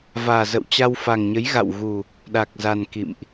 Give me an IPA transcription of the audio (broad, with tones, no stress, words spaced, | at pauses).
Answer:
vaː˨˩zə̰˧˨wt͡ɕa˧wfa˨˩ŋ ɲə˨˦jɣa̰˧˨wɣu˨˩ | ɗa˨˩k̚za˨˩n kḭ˧˨mʔ